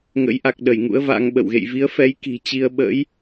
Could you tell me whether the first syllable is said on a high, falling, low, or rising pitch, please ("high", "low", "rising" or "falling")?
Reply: rising